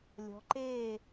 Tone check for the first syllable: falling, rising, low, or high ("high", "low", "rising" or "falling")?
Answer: rising